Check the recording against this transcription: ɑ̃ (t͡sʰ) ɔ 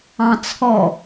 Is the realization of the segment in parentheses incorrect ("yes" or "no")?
no